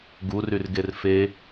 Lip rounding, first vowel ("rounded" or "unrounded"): rounded